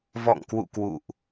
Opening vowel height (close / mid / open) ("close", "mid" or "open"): mid